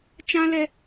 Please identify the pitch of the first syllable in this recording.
high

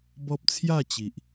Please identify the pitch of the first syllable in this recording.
high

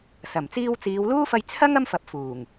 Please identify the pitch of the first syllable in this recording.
low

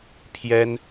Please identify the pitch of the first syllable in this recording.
high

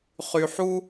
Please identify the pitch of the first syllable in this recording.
low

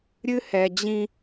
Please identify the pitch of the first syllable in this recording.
high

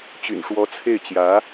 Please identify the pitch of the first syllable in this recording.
low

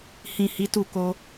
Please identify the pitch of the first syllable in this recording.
low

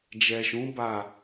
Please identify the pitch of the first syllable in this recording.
low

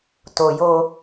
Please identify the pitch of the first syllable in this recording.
low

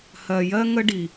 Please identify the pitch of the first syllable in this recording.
low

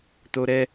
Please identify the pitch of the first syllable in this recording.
high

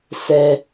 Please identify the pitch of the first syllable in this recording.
high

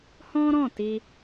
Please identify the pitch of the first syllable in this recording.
high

